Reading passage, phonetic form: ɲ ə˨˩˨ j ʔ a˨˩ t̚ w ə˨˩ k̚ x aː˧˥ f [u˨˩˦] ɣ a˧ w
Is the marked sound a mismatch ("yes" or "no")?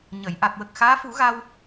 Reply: no